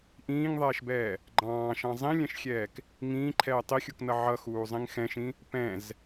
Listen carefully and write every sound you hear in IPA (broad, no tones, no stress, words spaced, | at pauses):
ʔĩːŋðˤɛːʃbɛː | ɡ͡ǃɑ̃ːʃɑ̃ zˤĩlʲɛ̃ʃxʲɛːk | ŋĩːǃʰɛː tˤixʲuknʌ ʕʌxuːzˤĩŋ xɛ̃ʃĩ | pɛ̃z